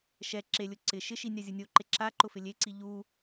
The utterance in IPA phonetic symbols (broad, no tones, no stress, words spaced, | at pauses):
ʃɛ ǁelʲʊ ǀɪ ʃɪʃi nʲazʲunʲoǃe ǁa ǃʊfɪlʲeǀi ʎu